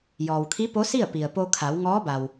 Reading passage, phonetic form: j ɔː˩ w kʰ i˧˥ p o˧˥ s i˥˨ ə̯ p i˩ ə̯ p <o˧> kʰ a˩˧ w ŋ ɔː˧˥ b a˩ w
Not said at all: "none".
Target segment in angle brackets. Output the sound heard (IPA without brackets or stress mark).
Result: o˧